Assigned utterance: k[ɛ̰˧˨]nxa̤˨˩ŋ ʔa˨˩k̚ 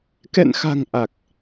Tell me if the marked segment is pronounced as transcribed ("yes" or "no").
yes